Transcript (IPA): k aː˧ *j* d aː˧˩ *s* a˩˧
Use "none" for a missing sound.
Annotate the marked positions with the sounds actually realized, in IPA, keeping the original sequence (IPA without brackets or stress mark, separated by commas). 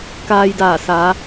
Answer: j, s